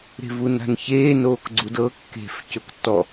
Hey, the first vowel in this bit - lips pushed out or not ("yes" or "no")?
no